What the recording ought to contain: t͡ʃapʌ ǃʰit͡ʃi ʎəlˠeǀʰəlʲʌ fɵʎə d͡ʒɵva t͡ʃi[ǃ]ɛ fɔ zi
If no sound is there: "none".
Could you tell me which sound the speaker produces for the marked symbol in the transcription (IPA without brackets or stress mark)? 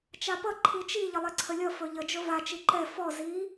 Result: ǃ